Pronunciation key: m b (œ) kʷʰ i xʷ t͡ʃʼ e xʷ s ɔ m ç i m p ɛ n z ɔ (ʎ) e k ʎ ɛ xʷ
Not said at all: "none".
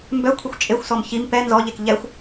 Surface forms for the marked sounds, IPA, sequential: œ, ʎ

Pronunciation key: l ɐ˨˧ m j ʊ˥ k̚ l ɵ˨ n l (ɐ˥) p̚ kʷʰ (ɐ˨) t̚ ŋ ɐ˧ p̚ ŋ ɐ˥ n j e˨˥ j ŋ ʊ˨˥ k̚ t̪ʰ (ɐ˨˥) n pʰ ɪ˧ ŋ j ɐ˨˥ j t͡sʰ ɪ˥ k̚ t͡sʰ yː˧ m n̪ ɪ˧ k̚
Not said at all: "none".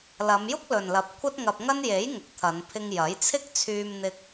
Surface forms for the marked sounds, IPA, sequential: ɐ˨˥, ɐ˥, ɐ˨˧

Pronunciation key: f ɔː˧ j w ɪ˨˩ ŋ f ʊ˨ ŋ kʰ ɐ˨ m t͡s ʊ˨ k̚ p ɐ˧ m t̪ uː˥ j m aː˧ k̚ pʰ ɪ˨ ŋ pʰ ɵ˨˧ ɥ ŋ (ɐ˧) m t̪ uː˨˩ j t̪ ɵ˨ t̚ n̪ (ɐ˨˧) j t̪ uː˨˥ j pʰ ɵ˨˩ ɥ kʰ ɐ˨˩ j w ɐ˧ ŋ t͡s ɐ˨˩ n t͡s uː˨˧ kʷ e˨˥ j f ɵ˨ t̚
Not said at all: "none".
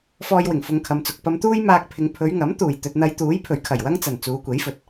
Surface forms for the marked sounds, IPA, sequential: ɐ˨˥, ɐ˨˧

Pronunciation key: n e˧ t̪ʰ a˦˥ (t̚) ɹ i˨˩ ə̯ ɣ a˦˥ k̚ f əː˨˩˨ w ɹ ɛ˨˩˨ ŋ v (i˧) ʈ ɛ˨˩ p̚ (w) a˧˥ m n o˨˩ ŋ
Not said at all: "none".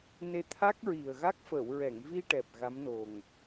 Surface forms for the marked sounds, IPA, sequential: k̚, i˧, ɣ

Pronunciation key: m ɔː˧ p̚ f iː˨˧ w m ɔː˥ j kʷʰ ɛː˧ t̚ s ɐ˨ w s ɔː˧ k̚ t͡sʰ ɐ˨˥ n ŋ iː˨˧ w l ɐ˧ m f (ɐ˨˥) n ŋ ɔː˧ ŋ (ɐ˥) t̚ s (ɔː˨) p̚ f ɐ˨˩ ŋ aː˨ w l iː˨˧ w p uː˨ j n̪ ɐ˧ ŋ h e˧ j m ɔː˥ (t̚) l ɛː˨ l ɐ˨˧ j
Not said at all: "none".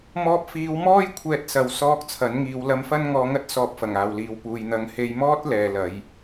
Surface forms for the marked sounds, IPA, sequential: ɐ˥, ɐ˥, ɔː˧, t̚

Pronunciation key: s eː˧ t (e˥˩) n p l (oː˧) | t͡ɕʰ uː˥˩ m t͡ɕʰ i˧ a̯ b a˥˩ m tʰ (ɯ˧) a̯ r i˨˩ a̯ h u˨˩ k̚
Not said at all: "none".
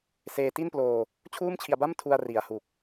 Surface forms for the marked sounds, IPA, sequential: i˥˩, oː˧, u˧

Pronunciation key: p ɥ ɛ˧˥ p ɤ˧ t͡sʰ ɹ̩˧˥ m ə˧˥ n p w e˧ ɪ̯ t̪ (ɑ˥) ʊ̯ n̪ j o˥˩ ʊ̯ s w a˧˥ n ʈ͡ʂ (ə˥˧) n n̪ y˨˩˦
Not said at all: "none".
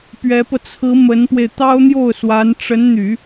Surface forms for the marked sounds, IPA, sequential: ɑ˥, ə˧˥

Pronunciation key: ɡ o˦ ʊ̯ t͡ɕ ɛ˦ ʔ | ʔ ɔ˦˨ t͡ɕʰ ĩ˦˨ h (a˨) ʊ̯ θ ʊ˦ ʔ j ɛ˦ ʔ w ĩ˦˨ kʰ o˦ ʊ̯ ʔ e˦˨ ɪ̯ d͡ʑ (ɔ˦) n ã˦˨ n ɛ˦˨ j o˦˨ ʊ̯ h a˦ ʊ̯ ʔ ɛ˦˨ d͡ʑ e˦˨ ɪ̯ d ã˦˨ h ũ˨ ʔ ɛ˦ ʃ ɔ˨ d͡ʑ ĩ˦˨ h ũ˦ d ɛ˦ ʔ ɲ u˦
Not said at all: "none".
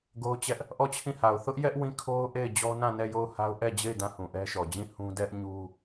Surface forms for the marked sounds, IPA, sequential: a˨, ɔ˦

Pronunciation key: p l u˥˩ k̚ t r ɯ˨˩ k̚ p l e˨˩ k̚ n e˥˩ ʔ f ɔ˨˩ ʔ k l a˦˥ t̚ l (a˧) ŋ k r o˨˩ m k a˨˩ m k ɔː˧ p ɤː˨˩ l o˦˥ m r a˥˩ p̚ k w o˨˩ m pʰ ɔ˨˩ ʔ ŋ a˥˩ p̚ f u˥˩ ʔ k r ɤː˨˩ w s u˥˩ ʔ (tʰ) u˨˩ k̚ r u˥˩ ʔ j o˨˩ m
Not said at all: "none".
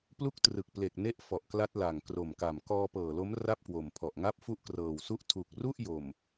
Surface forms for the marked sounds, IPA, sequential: a˨˩, tʰ

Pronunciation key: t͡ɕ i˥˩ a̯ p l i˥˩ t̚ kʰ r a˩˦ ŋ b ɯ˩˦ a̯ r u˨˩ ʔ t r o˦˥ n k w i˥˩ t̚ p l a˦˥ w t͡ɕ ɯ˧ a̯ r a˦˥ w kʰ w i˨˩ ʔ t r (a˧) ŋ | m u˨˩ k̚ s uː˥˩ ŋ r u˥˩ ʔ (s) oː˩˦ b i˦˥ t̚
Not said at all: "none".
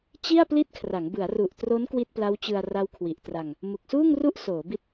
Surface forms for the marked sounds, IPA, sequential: a˧, s

